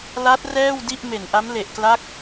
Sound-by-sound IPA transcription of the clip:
la˦˥t̚ rɛː˥˩wdi˥˩ʔ me˨˩nʔa˦˥mle˨˩ʔkla˦˥k̚

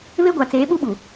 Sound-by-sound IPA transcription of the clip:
βe˦ɡʷa˨ t͡seː˨˦ɓu˦ɓu˨

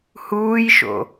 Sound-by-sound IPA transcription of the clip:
huːjʃo̰

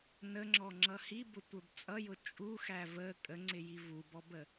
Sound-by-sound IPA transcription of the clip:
nəŋ͡ǁɔŋ͡ǁʌ hibʊtʷə˞b t͡sʼʌjʊ t͡ʃʼuxæ və kʼəŋ͡ǀɪji vubɔbə

